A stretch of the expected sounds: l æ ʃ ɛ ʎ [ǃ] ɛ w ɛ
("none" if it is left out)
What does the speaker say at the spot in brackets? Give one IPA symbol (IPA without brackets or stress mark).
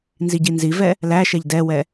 d